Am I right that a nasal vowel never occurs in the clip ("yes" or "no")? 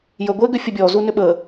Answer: yes